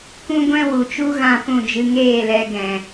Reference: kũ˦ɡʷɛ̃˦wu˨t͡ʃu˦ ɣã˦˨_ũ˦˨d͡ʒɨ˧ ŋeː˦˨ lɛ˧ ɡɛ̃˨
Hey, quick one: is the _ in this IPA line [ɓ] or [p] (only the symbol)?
p